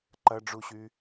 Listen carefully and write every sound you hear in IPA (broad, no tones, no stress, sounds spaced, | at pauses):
ǃ ɐ ɖ͡ʐ u ɕ y